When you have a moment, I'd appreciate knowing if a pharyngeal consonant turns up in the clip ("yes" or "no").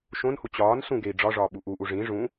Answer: no